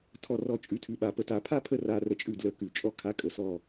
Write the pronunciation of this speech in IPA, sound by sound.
tʰ ɔ˧˩ r ɔ˧˩ t͡ʃʼ ʉ˨˦ tʰ ʉ˨˦ ɓ a˨˩˦ p ə˧˩ t a˨˩˦ pʰ a˥ pʰ ə˥˨ r a˧˥˧ r ə˥˨ t͡ʃʼ ʉ˥˨ d l ə˧˥˧ k ʉ˨˩˦ t͡ʃʼ ɔ˥ kʰ a˧˥˧ kʼ ə˨˩˦ s ɔ˧˩

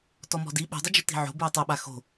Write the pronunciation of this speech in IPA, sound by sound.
t ɔ m ɔ̤ d i ɓ ṳ dˤ ʊ d͡ʒ ʊ t i̤ ʕ o̤ b u j tˤ o ɓ a x o̤

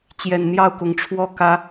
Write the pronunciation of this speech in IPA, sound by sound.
t͡ɕ j ɛ˨˩ n n̪ j ɑ˥˨ ʊ̯ k ʊ˨˦ ŋ ʈ͡ʂʰ w ɔ˥˨ k ä˦

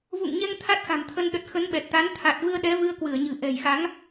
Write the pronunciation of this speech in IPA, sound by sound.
v ṵ˧˨ ŋ ɲ ɛ˧ ŋ t̪ʰ a˦˥ t̚ x a̤˨˩ m t̪ʰ ə˧ n ɗ ə˨˩ t̚ x ə˨˦ n ɓ ɛ˨˩ t̚ t̪ a˨˦ n t̪ʰ a˨˩ t̚ v ɨ˧ ə̯ ɗ ɛ˨˦ v ɨ˧ ə̯ k w ɨ˧˩ ə̯ ɲ ɨ̤˨˩ ʔ ɛ̤˨˩ j x a˨˦ ŋ

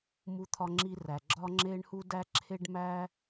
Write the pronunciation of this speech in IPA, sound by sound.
m u˥ t̪ʰ ɒ˥ ŋ͡ǁ i˥ r æ˩ ɡ͡ǁ ɒ˥ ŋ͡ǁ e˥ ɳ h u˥ d æ˥ ǁʰ e˥ ɖ m æ˥

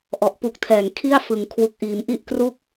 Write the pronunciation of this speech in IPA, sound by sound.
ʔ ɔ˨˩ ʔ p u˦˥ k̚ tʰ ɛː˩˦ ŋ kʰ i˥˩ a̯ f ɯ˩˦ ŋ kʰ w u˨˩ k̚ ʔ iː˩˦ m ʔ i˥˩ ʔ k r u˥˩ k̚

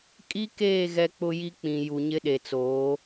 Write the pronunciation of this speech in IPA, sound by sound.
kʼ i˦ k eː˦˨ ɣ ɛ˦ k͡p ʊ˦ j i˦ k͡p ĩ˨ j u˨ ɲ ɪ˦ ɗ e˨ t͡s oː˨˦

